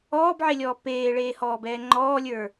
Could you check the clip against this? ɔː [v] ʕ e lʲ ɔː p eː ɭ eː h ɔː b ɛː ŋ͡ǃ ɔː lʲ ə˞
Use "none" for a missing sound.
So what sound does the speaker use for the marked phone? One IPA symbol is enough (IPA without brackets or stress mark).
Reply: b